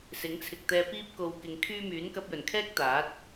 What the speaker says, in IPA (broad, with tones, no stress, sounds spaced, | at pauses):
s ɪ˨˥ ŋ t͡sʰ ɪ˨ k̚ t̪ ɛː˧ p iː˥ p̚ k o˧ w k ɪ˨˧ ŋ kʰ yː˥ m yː˨˥ n k ɐ˧ p̚ j ɵ˨˩ n kʰ ɛː˥ k̚ t̪ aː˨˥ t̚